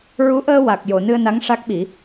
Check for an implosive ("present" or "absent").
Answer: present